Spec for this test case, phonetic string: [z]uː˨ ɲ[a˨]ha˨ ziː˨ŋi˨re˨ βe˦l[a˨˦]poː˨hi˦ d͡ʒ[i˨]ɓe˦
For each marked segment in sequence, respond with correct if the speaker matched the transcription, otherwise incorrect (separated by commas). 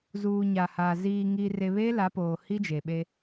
correct, correct, correct, incorrect